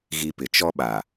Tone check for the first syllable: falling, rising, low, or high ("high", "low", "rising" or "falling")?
high